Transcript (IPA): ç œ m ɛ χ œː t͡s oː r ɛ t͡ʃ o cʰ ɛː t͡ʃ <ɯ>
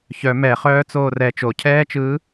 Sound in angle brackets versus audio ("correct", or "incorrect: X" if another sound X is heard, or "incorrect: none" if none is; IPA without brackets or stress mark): incorrect: ɯː